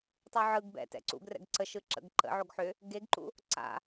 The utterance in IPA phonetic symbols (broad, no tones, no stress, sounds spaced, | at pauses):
tˤ u ʕ ɯ ɡ b ɛ̰ t ɛ̰ ǀ ṵ ɡ r ɛ̰ ɡ ǀ ə ʃ ɯ ǁ ə̰ ɡ ǃ ə̰ ʕ o ɡ ħ ʏ | ɡ e ɡ ǃ ṵ | ǀ a̰